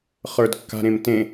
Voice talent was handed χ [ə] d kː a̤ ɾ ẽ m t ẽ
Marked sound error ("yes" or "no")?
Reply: yes